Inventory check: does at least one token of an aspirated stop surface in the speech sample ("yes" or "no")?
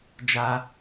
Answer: no